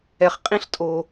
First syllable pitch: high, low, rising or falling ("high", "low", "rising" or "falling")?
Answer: low